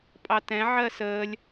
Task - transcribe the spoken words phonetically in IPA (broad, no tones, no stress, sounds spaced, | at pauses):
pʼ ɑ t ɛ̃ ʕ ɜ s əː lʲ